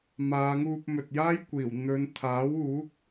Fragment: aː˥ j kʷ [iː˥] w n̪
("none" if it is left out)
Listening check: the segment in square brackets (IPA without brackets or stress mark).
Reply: iː˨˩